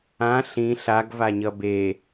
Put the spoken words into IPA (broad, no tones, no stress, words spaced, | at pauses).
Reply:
ã ɬĩ ɬaɡvaɲʌ be